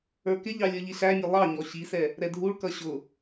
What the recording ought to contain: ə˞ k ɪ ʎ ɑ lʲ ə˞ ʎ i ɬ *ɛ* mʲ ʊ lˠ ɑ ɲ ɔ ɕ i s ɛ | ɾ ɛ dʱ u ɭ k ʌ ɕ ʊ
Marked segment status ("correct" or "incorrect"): incorrect